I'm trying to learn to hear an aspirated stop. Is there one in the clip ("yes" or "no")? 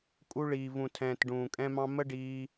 yes